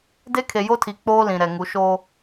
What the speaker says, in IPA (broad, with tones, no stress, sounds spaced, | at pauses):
d e˦ kʰ e˨ j o˦ tʰ i˨ k͡p oː˦ l ĩ˨ ɾ ɛ˨ ŋ u˨˦ ʃ o˦